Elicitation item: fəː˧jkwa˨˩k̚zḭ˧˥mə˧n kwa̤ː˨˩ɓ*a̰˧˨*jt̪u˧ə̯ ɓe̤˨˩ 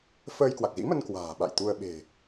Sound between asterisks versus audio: correct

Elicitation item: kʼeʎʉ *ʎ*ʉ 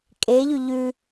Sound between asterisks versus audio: correct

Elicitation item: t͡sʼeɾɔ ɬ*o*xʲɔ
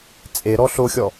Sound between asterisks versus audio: correct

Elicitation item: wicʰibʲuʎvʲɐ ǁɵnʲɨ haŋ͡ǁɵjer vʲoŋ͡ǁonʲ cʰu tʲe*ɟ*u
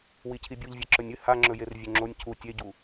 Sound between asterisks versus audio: correct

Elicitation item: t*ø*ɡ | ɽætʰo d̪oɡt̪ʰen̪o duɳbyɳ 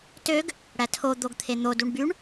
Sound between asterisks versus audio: correct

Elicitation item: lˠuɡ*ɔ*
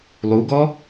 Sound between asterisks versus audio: correct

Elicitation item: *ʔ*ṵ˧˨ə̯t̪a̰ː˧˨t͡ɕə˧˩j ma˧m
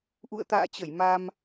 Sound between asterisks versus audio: correct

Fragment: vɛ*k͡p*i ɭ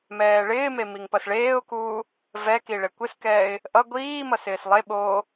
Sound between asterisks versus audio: incorrect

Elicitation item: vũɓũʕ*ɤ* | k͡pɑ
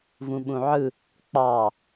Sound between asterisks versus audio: incorrect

